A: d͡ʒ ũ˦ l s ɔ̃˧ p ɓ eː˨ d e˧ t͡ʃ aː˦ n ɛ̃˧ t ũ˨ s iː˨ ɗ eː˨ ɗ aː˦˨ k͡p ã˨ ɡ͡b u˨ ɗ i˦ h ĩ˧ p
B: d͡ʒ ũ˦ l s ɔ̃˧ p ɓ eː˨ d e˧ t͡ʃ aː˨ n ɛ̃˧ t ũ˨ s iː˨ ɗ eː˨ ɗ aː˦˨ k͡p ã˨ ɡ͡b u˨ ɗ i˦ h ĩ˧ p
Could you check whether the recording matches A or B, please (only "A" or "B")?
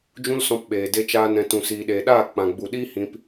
A